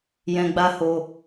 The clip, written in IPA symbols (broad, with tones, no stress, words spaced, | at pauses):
jɛ̃˧ɡ͡ba˦ho˧